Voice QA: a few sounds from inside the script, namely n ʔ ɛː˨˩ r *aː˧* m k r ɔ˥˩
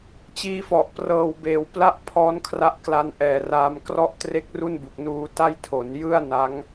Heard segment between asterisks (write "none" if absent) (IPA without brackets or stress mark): aː˧